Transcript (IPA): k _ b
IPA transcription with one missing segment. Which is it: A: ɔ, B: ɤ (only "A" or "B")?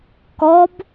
A